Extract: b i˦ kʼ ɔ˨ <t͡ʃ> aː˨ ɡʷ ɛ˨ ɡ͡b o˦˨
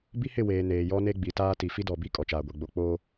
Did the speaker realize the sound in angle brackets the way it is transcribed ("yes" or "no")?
yes